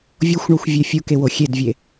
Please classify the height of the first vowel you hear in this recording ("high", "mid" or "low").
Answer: mid